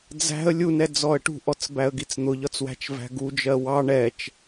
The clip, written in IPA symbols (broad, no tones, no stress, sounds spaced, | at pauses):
d͡z æ̤ ə̯ lʲ u n ɛ d͡z ɔ ə̯ ʈ ṳ ʔ ɔ t͡s b æ ə̯ ɡ i t͡s n̪ ʊ ʎ ɒ t͡s w æ̤ t͡ʃ v æ̤ ɡ u d͡ʒ ɜ w ɑ ɳ ɛ t͡ʃ